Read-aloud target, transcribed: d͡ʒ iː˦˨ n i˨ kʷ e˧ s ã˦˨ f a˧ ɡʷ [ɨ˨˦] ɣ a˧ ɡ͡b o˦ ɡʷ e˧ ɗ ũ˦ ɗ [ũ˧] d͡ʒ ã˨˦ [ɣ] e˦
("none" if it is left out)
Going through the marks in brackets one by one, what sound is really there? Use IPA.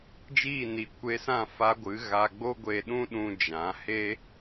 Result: ɨ˨˦, ũ˧, h

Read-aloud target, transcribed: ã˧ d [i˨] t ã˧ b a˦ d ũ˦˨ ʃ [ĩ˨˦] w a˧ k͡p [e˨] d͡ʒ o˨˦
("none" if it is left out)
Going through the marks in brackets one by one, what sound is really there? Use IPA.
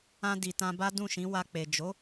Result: i˨, ĩ˨˦, e˨

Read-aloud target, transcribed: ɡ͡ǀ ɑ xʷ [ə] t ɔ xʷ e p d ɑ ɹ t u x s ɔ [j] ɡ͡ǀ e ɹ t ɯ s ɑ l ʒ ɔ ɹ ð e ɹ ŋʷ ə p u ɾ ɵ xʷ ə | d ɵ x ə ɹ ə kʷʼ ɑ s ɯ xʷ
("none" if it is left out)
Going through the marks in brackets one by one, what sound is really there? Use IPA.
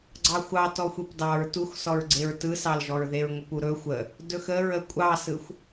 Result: ɑ, ɹ

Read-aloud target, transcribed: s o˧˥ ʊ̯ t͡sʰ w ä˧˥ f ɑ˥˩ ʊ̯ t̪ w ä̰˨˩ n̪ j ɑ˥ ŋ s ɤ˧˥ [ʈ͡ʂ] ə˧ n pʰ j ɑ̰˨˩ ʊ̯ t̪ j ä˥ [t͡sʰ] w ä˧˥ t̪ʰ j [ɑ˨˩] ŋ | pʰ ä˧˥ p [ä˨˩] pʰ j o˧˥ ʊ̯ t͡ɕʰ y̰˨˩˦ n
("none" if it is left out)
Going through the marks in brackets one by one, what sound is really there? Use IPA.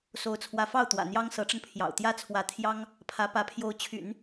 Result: ʈ͡ʂ, t͡sʰ, ɑ˥, ä˧˥

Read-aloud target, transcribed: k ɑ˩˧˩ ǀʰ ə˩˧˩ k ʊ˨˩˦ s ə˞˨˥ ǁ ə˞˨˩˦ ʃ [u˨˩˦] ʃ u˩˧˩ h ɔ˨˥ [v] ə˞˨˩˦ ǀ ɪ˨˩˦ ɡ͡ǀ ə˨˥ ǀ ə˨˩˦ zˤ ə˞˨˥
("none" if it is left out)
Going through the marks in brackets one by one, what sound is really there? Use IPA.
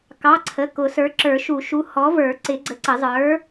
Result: u˨˩˦, v

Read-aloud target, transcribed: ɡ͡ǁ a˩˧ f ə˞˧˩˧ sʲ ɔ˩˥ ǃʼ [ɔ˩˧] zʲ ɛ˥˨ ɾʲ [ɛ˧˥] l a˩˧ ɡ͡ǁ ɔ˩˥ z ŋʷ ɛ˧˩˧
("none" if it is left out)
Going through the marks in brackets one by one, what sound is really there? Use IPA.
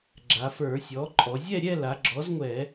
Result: ɔ˩˧, ɛ˥˨

